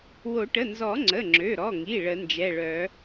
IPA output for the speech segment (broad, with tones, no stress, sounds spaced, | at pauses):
w o˨˩˦ ʈ ə˩˧˩ n z ɔ˨˩˦ ŋ͡ǀ ə˩˧˩ ŋ͡ǁ ø˩˧˩ ɾ ɔ˩˧˩ ŋ i˩˧˩ ɭ ə˨˩˦ n d͡ʒ ɛ˩˧˩ ɭ œ˨˩˦